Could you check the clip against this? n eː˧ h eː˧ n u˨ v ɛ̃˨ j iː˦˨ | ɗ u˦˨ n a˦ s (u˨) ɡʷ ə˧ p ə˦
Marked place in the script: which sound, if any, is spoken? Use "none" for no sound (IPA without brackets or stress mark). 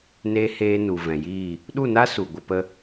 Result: u˨